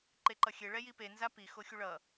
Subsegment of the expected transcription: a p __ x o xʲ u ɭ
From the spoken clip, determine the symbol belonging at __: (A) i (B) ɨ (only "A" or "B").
A